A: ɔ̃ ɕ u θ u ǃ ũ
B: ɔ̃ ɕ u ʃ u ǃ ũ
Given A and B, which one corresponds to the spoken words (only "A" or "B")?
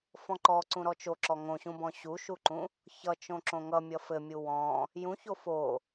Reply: B